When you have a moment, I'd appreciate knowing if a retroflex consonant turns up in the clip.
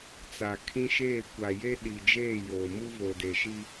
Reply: no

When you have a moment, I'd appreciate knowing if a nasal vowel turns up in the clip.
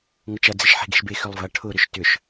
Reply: no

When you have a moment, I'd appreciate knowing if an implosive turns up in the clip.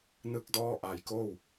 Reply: no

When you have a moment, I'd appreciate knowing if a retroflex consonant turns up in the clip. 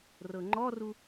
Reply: no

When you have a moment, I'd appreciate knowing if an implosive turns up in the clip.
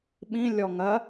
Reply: yes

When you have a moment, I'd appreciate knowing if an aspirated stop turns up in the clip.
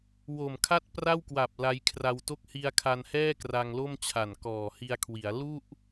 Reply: yes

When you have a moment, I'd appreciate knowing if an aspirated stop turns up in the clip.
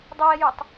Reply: no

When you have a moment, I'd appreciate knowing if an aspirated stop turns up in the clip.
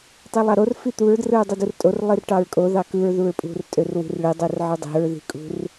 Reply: no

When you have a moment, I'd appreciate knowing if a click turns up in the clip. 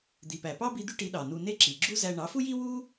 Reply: yes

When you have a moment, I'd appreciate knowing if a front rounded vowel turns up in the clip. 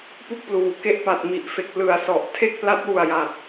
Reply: no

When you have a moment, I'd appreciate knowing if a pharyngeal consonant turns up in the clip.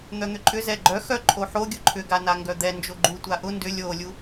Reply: yes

